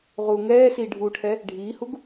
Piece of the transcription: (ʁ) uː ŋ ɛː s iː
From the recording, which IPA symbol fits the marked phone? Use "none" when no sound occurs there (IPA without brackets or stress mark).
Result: ʁ